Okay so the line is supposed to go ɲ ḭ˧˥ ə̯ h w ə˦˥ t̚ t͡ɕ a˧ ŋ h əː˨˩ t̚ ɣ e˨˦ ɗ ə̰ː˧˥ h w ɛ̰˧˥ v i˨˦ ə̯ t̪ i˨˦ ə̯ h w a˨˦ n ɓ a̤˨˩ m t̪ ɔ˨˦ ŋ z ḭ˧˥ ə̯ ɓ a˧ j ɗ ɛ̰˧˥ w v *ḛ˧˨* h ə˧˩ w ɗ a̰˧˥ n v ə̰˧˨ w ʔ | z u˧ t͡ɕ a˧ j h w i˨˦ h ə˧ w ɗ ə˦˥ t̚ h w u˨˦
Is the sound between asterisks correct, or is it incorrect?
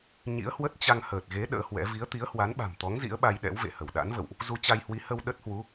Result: correct